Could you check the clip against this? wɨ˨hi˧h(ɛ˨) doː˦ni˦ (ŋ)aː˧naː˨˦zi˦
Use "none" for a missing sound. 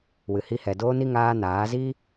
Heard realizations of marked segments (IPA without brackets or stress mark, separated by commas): ɛ˨, ŋ